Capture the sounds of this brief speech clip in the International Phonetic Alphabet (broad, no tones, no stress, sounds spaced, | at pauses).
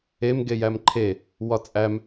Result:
e m ɡ e j æ m ǃʰ e | w ɒ t͡sʼ æ m